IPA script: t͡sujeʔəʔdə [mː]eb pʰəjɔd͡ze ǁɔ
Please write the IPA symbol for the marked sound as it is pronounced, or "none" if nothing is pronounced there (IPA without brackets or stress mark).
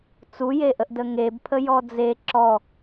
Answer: ŋ